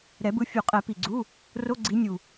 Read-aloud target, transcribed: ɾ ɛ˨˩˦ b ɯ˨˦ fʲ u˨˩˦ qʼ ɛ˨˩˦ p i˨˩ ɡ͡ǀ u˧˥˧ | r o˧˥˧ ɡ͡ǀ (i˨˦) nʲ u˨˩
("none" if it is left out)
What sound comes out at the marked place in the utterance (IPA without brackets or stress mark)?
i˨˦